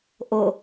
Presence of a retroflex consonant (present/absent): absent